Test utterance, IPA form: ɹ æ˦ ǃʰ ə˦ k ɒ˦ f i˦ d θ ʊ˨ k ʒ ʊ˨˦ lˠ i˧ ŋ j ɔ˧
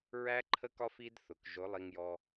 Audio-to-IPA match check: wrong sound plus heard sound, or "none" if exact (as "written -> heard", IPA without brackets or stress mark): none